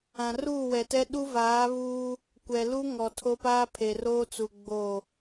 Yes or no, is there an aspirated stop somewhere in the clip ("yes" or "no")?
yes